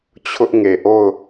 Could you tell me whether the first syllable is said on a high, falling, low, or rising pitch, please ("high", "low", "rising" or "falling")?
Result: high